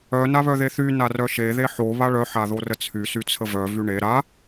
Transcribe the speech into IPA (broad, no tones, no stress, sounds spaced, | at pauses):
œ n a β œ ð e θ y n a r œ ʃ e ð e ħ o β a ɭ œ ħ a ð o r ə t͡sʰ y s y t͡sʰ ə v œ v y ɳ e ɾ a